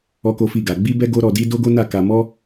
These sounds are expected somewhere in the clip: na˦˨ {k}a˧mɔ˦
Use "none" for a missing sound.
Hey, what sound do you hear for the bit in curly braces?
k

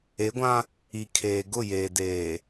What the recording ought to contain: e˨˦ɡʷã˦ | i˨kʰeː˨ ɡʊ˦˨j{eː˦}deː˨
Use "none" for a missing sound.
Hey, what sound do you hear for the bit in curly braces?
eː˨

